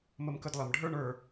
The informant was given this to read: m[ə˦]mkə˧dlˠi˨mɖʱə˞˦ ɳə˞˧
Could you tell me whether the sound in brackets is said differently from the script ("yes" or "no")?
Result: yes